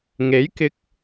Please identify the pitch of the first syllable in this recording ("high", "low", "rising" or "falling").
rising